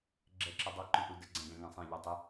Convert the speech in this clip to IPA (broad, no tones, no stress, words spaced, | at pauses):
ɡ͡ǁɛǁədˤʌ ǃũʔudə ɡ͡ǀæ̃ɡæ̃ŋæ̃sˤæ̃ ʎɛtˤɪ